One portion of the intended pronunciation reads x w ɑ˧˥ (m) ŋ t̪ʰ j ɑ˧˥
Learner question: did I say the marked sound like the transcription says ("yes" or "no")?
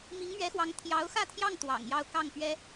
no